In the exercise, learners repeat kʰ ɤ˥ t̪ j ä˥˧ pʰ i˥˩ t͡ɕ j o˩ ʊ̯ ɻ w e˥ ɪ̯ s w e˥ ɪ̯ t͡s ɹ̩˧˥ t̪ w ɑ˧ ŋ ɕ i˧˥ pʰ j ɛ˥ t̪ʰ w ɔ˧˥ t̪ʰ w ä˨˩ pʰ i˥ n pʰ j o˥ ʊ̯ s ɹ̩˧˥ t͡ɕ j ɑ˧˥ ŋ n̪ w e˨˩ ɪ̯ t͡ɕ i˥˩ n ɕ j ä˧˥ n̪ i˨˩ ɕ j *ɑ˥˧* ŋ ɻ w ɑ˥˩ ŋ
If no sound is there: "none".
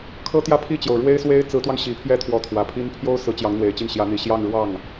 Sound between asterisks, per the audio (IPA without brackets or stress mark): ɑ˥˧